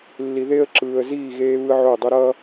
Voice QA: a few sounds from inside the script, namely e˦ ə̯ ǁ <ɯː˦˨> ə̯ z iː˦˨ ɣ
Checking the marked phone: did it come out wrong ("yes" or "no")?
yes